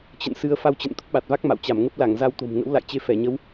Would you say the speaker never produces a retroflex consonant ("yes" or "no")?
yes